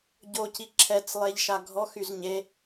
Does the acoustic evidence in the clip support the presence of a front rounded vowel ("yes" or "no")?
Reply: yes